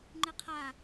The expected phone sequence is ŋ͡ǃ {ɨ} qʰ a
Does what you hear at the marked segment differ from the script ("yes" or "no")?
no